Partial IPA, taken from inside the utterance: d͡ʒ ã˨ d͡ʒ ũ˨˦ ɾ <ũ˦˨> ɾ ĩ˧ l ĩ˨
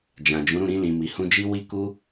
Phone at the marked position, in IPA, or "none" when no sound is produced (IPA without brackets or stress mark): ũ˦˨